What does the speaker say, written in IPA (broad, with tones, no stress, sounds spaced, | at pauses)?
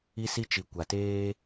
i˦ s i˦ t͡ʃ i˨ kʷ a˨ t eː˦